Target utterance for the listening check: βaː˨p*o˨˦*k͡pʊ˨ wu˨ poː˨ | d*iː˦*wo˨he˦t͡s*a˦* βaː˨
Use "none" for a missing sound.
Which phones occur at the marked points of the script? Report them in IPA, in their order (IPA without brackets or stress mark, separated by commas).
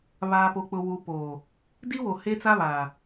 o˨, i˦, a˦